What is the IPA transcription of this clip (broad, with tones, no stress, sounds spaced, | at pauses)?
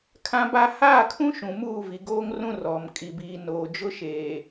kʰ ã˦ b a˦ h aː˦˨ kʰ ũ˦ ʃ ũ˨ m uː˦˨ v i˨ ɡ oː˦ ŋ r ũ˦ r ɔ˨ m kʼ i˨ b iː˨ n oː˨ d͡ʒ ʊ˦ ʃ eː˨